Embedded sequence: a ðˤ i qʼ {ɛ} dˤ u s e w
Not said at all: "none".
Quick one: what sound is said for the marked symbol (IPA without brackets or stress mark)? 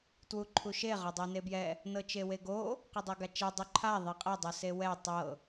ɛ